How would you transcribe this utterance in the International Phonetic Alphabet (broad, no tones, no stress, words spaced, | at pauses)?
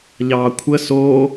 ʎɑːkʷʰə so